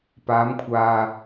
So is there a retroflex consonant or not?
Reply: no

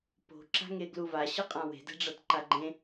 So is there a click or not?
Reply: yes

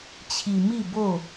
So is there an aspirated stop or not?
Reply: yes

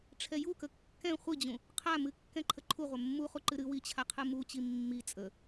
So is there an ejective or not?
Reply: yes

